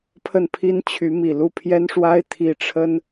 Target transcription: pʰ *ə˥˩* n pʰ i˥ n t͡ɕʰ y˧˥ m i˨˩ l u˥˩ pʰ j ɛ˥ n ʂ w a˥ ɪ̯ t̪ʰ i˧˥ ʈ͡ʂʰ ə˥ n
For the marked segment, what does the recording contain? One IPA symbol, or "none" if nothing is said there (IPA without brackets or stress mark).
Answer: ə˥˩